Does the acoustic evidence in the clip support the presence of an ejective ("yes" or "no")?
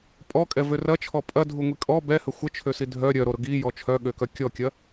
yes